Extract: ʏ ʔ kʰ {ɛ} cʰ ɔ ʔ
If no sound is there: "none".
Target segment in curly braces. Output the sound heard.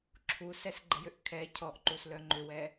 ɛ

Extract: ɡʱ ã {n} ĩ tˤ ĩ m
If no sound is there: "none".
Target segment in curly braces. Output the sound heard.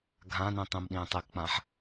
n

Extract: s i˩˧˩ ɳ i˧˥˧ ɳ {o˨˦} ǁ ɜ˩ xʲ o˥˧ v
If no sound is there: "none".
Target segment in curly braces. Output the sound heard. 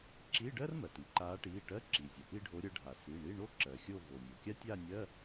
o˥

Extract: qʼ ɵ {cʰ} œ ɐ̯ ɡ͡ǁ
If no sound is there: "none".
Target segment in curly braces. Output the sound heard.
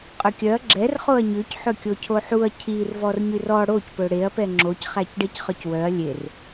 kʲ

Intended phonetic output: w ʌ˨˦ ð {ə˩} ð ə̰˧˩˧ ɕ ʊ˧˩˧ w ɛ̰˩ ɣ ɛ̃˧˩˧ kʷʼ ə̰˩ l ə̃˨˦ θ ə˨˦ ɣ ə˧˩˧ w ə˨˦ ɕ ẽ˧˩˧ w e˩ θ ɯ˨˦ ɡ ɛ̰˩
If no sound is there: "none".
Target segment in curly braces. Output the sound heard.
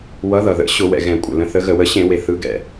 ʌ˩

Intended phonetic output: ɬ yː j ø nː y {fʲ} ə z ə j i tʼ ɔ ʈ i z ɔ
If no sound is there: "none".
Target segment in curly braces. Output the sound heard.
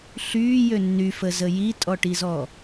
f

